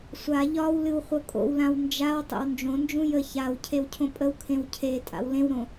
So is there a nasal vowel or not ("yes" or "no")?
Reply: yes